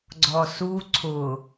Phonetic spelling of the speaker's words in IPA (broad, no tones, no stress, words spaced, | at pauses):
ɡ͡ǀɔsu ǀʰʊ